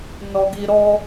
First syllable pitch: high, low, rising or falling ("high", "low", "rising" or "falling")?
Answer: low